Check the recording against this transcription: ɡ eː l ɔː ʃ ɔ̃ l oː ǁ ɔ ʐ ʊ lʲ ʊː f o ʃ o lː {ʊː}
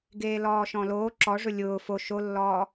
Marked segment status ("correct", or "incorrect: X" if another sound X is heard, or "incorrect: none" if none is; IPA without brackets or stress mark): incorrect: ɔː